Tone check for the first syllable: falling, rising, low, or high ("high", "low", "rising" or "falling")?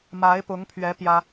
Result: rising